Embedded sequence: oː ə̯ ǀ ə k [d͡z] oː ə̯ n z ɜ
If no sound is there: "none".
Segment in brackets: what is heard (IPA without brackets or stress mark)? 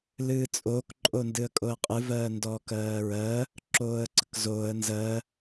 z